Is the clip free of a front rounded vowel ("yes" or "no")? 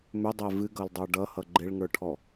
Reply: no